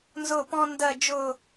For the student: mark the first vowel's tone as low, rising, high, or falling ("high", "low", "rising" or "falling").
falling